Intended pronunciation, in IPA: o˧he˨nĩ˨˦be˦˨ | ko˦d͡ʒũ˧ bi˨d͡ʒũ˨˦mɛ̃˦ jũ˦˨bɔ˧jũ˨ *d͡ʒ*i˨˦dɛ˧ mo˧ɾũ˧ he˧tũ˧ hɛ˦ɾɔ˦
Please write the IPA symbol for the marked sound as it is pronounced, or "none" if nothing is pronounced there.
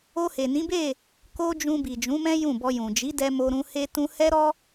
d͡ʒ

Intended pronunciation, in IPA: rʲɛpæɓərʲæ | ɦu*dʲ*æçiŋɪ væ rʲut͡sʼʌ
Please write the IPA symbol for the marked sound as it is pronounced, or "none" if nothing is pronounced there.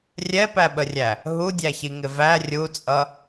dʲ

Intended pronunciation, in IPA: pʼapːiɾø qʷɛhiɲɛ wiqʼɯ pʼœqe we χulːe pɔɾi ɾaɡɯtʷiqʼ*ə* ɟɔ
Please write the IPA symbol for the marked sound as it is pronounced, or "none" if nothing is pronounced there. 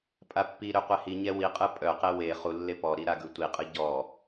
ɯ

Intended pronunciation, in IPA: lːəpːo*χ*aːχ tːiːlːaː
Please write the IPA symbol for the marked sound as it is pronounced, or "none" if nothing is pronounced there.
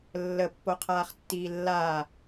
qʰ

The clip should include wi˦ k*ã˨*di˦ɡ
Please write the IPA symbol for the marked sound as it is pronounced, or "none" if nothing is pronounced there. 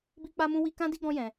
ã˦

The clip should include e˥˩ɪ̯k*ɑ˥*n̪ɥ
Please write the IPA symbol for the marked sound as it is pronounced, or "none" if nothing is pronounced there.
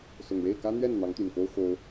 ä˥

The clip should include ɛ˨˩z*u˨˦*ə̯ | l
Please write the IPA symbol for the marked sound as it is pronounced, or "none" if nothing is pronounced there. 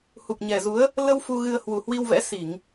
u˨˦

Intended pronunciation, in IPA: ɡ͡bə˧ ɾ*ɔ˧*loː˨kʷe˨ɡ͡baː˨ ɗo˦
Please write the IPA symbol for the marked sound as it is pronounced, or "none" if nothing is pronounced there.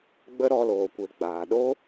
ɔ˧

